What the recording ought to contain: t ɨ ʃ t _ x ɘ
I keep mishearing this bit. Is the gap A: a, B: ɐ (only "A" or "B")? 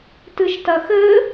B